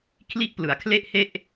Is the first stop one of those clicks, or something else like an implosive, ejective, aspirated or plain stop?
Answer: aspirated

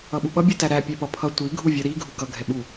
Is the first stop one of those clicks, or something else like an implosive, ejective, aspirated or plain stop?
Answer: implosive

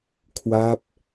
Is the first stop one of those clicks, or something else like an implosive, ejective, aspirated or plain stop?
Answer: aspirated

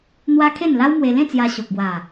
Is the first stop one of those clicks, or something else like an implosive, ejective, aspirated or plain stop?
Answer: aspirated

